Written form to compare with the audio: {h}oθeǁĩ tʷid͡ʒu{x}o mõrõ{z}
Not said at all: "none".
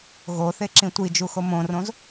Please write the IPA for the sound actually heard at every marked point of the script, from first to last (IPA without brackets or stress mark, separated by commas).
ɣ, x, z